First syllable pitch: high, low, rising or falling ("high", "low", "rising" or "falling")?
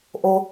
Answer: low